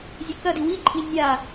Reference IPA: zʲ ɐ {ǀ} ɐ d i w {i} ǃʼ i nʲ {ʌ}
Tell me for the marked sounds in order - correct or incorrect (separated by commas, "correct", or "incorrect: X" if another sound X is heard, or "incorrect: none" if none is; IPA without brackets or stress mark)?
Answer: incorrect: k, correct, incorrect: a